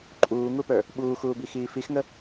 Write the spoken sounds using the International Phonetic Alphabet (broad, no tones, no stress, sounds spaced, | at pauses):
ǃʼ uː ŋ u p ə˞ | ɓ uː x uː b i x iː f i x ŋ ə